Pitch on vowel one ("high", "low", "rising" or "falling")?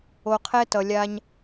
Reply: low